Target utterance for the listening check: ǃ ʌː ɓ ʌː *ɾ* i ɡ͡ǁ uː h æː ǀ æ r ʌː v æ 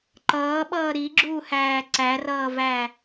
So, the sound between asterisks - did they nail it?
yes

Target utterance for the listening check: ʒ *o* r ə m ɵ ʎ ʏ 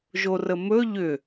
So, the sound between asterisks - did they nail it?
yes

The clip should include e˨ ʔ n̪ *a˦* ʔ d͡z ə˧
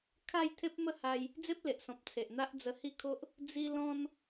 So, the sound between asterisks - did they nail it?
yes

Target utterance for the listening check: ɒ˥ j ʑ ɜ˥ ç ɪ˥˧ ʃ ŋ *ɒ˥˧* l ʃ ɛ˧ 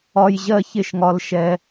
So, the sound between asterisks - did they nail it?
no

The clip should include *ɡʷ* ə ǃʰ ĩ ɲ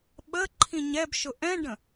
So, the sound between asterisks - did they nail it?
no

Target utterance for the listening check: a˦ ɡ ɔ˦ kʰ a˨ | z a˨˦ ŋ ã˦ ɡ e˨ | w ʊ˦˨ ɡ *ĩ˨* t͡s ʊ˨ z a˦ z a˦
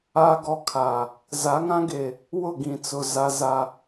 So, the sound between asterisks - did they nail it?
yes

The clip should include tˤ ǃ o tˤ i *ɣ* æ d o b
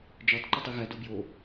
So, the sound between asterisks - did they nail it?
yes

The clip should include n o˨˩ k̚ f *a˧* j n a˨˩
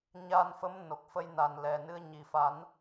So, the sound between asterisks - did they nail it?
no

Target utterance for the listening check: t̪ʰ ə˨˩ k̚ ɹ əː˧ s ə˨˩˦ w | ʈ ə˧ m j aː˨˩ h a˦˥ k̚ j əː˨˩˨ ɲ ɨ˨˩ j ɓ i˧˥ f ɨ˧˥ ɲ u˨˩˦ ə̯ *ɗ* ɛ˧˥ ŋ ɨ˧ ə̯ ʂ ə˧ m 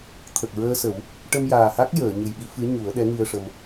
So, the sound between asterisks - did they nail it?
yes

